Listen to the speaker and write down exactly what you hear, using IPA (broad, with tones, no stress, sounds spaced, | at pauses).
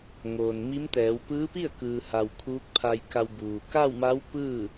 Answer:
ŋ oː˩ n m i˧˥ m t̪ ɛː˩˧ w p ɯː˧˥ p i˥˨ ə̯ k ɯː˩ h a˩ w kʰ uː˧˥ k̚ pʰ a˧ j k a˧ w b uː˩ k a˥˨ w m a˧˥ w p ɯː˥˨